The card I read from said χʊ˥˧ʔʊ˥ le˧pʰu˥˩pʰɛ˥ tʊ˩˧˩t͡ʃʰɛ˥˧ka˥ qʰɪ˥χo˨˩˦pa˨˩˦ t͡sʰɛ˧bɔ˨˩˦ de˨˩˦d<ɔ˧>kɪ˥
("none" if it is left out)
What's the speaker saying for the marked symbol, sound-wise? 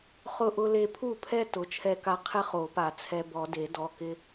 ɔ˩˧˩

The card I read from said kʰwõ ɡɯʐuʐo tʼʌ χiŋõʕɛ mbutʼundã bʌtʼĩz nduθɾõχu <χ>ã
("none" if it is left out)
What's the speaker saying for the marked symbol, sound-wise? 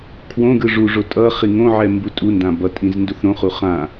χ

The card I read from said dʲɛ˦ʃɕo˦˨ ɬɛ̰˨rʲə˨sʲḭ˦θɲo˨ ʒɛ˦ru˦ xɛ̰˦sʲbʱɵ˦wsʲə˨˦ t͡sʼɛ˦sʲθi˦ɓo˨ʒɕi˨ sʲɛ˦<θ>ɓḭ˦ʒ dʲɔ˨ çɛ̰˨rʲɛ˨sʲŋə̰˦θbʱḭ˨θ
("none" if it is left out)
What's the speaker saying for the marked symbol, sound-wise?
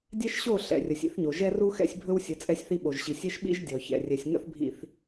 ʃ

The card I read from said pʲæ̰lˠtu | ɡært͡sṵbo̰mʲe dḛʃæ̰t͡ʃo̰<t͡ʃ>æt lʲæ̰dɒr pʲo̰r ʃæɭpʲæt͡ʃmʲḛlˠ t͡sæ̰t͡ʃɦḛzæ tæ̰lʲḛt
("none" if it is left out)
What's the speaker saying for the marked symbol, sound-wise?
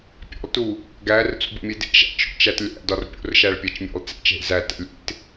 t͡ʃ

